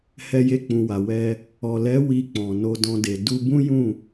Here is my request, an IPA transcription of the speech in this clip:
h ɛ˧ j e˧ k͡p ũ˨ w a˨ w ɛ˧ | ɔ˨ l ɛ˨˦ w i˧ k͡p ɔ̃˨ n o˧ d ɔ̃˧ d e˨ d u˧ b ũ˦ j ũ˦˨

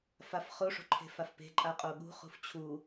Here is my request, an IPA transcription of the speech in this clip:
f a f χ o ʂ o̤ ǃʰ e̤ f a f p e̤ ǃʼ a qʼ o ɠ ṳ χ ṳ f t͡ɕʰ u

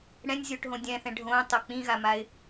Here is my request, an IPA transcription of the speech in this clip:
ɽ ɛ̃ nʲ zʲ o ʈ ɦ õ dʲ ɛ̃ θ ɛ̃ ɖʱ õ tˤ o k͡p ĩ ɣ a m a ɪ̯

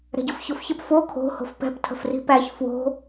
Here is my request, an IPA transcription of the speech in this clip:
ɾ ɛ̤ ɟ o f ç o f ç ə p f o kʰ o̤ h o̤ f p ɛ̤ p tʰ ə̤ f r i̤ p æ ç f w o̤

